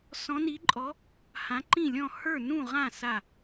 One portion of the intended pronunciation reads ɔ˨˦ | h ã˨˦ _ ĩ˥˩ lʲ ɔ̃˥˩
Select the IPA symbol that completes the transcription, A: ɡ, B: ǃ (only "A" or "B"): B